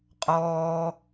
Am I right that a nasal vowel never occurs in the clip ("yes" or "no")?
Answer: yes